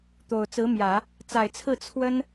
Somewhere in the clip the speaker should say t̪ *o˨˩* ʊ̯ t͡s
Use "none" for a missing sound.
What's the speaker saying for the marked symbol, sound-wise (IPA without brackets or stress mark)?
o˨˩